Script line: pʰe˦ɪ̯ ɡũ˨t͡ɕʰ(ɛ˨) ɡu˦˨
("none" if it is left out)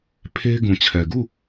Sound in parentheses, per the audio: ɛ˨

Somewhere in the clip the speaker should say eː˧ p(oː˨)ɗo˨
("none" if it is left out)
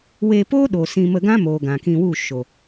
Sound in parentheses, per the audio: oː˦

